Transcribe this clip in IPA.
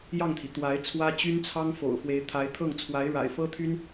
j ɑ˥˩ ŋ t̪ʰ i˩ t̪ w a˧˥ ɪ̯ t͡sʰ w ä˥ t͡ɕ y˥ n t͡sʰ ɑ˥ ŋ f o̰˨˩ ʊ̯ f w e˧˥ ɪ̯ t̪ʰ a˧˥ ɪ̯ t̪ʰ ɤ˥˩ ŋ t͡sʰ w a˧˥ ɪ̯ ɻ a̰˨˩ ɪ̯ f ɤ˥ t̪ʰ y˥ n

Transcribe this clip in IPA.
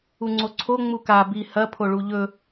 u ŋ͡ǀ o ǀʰ o ŋ͡m u k a b i h ɐ pʰ o ɭ u ʎ ɵ

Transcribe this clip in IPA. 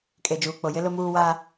kʼ e˨ d͡ʒ uː˨ k͡p o˨ j ɪ˦ l ʊ˦ m uː˦ w a˦

